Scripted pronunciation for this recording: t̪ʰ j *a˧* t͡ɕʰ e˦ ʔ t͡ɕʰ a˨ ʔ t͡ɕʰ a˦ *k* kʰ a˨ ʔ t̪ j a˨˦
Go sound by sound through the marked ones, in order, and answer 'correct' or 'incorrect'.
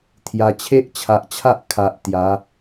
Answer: correct, incorrect

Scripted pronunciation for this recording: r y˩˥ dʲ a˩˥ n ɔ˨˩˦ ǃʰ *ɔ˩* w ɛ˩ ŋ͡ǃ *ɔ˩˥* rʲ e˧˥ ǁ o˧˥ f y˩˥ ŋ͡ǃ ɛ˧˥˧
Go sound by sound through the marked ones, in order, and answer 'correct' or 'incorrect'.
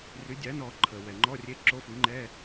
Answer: incorrect, incorrect

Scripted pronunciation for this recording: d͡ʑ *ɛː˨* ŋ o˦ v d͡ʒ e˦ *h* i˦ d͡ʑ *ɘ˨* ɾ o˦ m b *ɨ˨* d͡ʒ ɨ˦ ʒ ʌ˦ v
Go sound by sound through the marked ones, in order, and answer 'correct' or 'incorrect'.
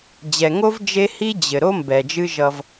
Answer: incorrect, correct, correct, incorrect

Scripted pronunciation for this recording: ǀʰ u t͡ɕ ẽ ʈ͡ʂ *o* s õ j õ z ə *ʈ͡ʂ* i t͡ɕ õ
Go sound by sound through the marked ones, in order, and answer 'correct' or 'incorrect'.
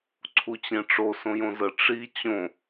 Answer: correct, correct

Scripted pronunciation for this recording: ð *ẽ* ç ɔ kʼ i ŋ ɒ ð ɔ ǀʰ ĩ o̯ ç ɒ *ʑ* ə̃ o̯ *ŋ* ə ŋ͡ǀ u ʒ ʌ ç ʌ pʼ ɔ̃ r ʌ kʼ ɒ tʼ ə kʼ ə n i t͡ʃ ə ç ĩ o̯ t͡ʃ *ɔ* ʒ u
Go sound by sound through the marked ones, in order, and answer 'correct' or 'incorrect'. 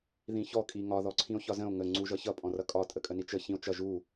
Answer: incorrect, incorrect, correct, incorrect

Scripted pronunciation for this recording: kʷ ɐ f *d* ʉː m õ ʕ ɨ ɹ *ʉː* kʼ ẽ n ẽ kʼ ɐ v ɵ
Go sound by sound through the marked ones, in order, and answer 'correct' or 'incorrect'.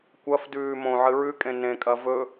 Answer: correct, incorrect

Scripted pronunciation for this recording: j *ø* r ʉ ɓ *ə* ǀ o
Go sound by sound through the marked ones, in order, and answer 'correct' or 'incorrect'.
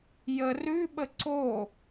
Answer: incorrect, correct

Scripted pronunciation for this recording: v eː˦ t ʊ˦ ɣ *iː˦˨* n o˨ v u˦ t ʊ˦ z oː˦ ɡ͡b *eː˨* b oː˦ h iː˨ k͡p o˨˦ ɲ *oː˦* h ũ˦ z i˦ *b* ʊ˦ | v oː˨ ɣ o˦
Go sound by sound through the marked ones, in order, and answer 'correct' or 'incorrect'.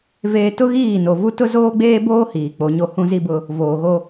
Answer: correct, incorrect, incorrect, correct

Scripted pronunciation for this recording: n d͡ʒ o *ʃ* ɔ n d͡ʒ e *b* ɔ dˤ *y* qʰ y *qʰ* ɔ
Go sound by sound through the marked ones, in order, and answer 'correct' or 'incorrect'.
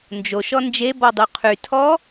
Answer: correct, correct, incorrect, incorrect

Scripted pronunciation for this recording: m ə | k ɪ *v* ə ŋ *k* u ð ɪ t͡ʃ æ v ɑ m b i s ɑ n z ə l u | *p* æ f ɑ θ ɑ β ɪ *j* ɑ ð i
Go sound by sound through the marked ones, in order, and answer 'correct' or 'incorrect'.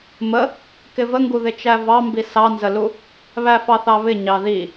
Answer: correct, incorrect, incorrect, incorrect

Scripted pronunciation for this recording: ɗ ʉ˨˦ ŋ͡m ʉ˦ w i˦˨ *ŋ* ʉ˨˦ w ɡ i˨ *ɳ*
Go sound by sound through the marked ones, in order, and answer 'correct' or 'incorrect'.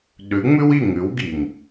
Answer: correct, incorrect

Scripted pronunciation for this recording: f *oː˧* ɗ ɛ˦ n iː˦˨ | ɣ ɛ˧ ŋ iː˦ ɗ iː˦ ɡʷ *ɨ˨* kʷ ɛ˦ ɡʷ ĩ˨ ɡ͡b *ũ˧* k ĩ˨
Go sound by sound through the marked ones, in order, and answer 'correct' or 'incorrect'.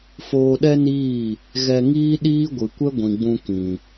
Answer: correct, correct, correct

